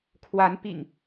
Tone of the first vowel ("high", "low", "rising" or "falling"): rising